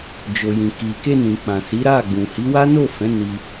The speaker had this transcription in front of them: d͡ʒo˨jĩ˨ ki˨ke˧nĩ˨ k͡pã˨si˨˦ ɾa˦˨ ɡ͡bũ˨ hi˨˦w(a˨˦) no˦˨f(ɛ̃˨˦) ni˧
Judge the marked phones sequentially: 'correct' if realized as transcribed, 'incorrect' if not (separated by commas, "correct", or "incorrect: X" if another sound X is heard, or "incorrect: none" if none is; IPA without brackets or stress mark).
incorrect: a˦, correct